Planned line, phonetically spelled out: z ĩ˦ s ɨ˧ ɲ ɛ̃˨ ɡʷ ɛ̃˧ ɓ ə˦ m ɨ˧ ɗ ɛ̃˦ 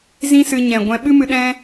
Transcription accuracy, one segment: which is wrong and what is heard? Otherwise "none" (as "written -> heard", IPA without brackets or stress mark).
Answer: ə˦ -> ɨ˦